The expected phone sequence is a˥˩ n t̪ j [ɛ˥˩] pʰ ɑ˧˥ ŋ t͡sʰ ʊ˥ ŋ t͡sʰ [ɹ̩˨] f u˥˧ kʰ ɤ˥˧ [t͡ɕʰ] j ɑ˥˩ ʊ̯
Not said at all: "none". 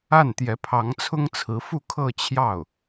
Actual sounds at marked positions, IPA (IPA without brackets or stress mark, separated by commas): ɛ˧˥, ɹ̩˧˥, t͡ɕʰ